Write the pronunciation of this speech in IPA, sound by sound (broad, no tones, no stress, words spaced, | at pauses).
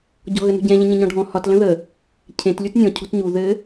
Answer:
ɟɔ̤ɣənṳɟɛ̃ ʎə̃ɲə̃ɲɔ̃ɖʱɔ̃ hɒt lə̃ðə | cʰẽt lʲutnʲɔ̃ cʰo̤tɲu ðɘ